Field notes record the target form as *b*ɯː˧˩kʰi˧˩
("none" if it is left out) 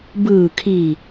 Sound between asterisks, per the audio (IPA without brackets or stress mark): b